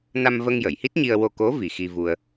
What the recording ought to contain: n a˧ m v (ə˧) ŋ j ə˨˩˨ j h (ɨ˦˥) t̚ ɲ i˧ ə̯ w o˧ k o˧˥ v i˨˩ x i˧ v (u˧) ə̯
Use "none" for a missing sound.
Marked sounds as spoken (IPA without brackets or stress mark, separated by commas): ə˧, i˦˥, u˧